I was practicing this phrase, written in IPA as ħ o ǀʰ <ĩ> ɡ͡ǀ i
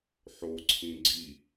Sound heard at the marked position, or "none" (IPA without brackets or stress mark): ĩ